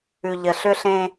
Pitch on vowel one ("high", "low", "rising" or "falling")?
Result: low